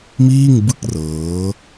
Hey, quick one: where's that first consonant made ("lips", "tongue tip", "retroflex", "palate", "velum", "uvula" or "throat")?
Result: lips